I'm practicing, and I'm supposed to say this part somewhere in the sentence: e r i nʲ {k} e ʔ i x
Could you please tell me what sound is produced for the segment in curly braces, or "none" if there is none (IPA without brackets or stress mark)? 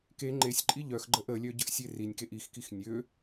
k